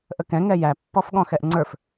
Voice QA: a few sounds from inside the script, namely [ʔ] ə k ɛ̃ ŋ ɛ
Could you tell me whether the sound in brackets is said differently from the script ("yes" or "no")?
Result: no